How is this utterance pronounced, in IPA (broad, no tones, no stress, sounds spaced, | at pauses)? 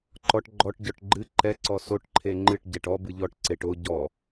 ǃ ɔ ʈ ɡ͡ǃ ɔ ʈ ɟ ɔ ʈ ɡ͡ǃ ɨ ǃ ɛ ǀ ɔ s o ʈ ǃʰ e ŋ͡ǃ ɨ ʈ ɟ ɛ ʈ ɔ b ɨ ʎ ɔ ʈ ǀ e ʈ o ɟ ɔ